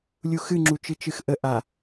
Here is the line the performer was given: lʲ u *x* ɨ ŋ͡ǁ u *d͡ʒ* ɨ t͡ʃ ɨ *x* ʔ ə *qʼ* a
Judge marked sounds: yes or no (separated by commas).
yes, no, yes, no